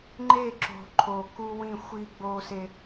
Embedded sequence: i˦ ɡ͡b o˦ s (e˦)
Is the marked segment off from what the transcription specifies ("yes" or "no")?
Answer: no